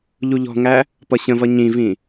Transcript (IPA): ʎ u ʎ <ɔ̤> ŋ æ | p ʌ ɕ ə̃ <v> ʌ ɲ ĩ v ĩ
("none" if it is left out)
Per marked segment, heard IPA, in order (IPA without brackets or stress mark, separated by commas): ɔ̤, v